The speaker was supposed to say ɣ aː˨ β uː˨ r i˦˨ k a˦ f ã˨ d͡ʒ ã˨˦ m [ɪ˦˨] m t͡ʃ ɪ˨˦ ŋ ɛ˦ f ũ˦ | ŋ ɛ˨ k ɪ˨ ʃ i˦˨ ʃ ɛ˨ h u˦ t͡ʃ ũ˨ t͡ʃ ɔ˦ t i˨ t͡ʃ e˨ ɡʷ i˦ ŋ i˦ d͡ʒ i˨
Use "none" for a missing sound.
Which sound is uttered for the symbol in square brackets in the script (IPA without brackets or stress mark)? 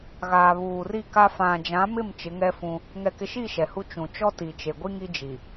ɪ˦˨